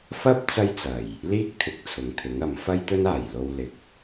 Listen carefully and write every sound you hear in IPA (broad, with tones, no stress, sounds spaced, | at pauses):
f ɐ˥ p̚ t͡s ɐ˥ j t͡s ɐ˨˩ j | l iː˥ k̚ t̪ʰ ɪ˨˥ k̚ t͡sʰ ʊ˨ ŋ t̪ʰ ɪ˨˥ ŋ ɐ˨˥ m f ɐ˥ j t̪ ɵ˥ n aː˨˩ j l o˥ w l ɪ˧ k̚